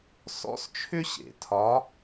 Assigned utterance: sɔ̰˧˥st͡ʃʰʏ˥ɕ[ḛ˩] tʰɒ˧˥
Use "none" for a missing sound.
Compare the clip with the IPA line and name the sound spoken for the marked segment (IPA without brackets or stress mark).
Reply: ḛ˩